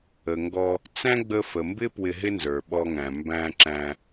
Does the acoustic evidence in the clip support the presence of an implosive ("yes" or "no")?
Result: yes